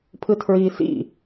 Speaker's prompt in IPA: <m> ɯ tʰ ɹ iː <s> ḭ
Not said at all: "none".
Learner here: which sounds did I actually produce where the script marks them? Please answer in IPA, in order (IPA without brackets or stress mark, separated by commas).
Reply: pʰ, s